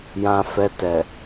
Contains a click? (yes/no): no